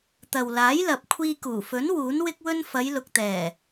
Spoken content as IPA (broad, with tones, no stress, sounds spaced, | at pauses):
t̪ ɐ˨ w l aː˨˥ j l ɐ˨ p̚ kʷʰ iː˧ k uː˨˩ f ɵ˨˥ n w uː˨˥ n w ɪ˥ k̚ w ɵ˥ n f ɐ˨˧ j l ʊ˨ k̚ t̪ ɛː˨˩